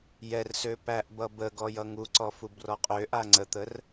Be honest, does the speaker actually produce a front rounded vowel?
yes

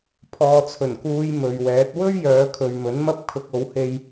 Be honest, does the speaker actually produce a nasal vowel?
no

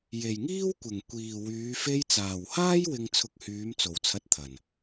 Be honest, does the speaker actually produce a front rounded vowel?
yes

